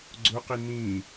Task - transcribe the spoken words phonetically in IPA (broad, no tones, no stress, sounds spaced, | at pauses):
ɡ͡ǀ ʊ q i n ĩː